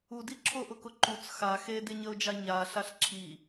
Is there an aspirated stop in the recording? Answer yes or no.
yes